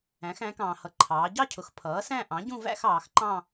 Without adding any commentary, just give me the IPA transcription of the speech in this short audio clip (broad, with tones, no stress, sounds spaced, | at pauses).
æ̃˩˧ x æ̃˩˧ k ɑ̃ː˩ h ʌ˩˧ ǃʰ ɑː˩˧ ɟ ɑ˥˧ cʰ ʊ˩˥ x pʰ ʌː˩˥ s æ̃˥˧ ʔ ɑ̃˩˥ ɟ ũ˥˧ v æ̰˥˧ x ɑː˩˧ x ǃ ɑ̃˥˧